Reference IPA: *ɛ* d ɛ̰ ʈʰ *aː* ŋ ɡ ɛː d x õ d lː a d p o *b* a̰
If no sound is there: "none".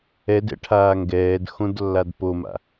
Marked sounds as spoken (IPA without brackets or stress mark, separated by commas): ɛ, aː, m